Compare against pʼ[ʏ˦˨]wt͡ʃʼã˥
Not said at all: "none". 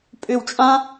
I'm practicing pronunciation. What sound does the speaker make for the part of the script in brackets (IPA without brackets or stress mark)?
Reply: ʏ˦˨